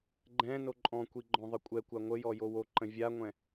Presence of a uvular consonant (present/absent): absent